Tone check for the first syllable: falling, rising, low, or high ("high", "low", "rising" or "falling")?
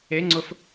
rising